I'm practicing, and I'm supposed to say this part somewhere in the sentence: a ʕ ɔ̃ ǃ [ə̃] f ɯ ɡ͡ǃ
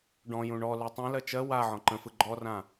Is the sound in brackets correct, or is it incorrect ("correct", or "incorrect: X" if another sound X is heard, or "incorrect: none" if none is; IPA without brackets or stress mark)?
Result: correct